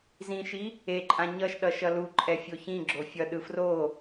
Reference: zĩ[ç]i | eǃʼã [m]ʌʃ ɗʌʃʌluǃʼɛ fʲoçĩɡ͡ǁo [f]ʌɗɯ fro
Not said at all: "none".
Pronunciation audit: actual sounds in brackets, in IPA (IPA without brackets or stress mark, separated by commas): ʃ, ɲ, fʲ